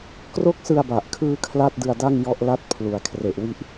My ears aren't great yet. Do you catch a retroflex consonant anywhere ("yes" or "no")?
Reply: no